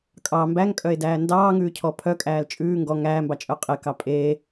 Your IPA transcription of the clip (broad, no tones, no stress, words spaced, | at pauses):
kʼɑ mbæŋkʼœe̯dæː ndɑːŋʉːcʰɔ pʰœkʼæːl t͡ʃʼʉː ŋɡɔ ŋæːmbɑt͡ʃʼœ qʼekɑ pʼeː